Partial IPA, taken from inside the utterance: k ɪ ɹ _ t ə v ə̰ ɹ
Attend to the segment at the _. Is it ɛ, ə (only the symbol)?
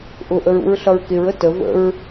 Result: ə